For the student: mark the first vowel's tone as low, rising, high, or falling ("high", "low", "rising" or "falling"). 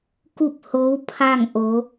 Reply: falling